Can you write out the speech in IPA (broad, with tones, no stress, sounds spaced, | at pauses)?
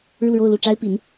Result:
ɻ u˥˧ ɻ o˥˧ ʊ̯ l u˥˩ ʈ͡ʂ a˥ ɪ̯ p i˧˥ n